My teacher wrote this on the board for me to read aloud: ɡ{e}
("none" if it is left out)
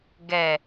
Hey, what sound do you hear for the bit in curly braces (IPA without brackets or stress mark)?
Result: ɛ